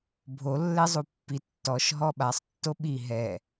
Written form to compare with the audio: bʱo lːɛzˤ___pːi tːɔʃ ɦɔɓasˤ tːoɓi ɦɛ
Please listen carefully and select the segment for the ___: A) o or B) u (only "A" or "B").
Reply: B